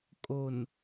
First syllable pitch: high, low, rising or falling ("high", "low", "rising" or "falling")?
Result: low